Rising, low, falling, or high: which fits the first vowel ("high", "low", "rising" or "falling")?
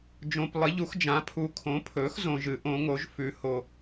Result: low